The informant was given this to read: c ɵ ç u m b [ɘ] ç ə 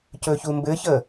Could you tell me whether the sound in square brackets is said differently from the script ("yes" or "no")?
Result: no